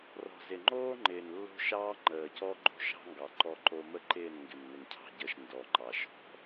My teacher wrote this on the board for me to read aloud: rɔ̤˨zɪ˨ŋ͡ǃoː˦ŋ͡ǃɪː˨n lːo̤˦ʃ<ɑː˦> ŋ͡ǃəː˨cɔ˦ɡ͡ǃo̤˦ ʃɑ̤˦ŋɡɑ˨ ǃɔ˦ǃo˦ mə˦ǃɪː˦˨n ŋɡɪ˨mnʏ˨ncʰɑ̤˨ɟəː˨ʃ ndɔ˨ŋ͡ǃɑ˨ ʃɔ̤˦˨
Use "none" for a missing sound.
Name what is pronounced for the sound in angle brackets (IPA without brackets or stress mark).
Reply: ɑː˦